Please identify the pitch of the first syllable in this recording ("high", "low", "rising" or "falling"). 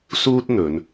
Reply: high